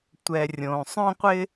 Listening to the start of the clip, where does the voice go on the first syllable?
low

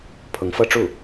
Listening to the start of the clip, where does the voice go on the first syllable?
rising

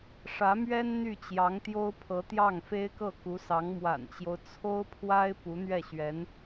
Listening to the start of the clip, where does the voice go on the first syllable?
rising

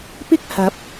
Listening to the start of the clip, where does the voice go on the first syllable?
high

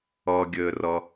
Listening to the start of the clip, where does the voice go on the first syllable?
low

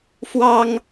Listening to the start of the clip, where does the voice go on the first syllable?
high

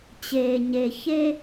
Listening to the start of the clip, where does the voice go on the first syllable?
low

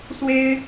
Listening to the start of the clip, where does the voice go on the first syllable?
high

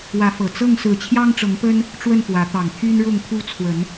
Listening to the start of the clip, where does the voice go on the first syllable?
rising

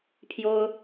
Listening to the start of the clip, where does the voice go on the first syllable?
high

